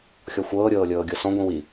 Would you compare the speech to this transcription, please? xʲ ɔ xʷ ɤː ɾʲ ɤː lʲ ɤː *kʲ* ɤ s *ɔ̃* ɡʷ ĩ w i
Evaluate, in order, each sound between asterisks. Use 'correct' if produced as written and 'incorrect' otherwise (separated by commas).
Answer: incorrect, correct